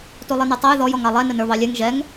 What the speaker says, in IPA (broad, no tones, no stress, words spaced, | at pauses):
tulˠinutˤʌj ðɔj ɔŋɑlˠɛ nənə˞βɑlʲɛŋ ʒɛŋ